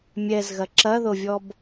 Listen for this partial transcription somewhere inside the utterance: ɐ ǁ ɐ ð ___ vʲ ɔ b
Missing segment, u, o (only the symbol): o